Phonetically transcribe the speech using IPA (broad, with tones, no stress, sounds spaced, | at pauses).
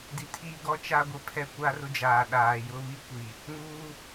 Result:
d i˨ tʰ iː˦ ɡ ɔ˦ t͡ʃ a˦ ɡʷ ɪ˨˦ pʰ ɛ˦ kʷ a˦ r ʊ˦ d͡ʒ aː˨ ɗ aː˨ j ʊ˦ β i˦ kʷ i˨ | ŋ uː˦